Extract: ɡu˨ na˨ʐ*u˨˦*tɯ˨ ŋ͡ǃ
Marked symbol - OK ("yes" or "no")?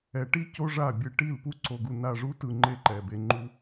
yes